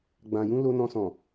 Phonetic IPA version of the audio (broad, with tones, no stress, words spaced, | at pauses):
ɡ͡bã˨ jũ˧ lo˧nɔ̃˧sɔ̃˨